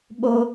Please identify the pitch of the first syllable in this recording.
high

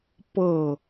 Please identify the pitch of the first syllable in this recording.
falling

